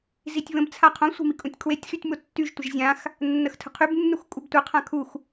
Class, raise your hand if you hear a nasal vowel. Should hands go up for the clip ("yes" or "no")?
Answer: yes